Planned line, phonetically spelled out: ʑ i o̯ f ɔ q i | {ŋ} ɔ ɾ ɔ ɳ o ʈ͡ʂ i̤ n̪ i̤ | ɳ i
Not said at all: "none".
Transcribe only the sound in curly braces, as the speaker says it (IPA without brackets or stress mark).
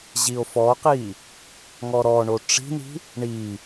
ŋ